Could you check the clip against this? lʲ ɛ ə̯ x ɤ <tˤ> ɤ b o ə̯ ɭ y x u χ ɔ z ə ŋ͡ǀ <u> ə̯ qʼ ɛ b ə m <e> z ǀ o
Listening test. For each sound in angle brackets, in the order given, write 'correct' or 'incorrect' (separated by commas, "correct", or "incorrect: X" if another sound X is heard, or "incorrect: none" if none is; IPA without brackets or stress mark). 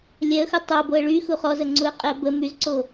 correct, correct, incorrect: y